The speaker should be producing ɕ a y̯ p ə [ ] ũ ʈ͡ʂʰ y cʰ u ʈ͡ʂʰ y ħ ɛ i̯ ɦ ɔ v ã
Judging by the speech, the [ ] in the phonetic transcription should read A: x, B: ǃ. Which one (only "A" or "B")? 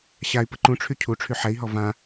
B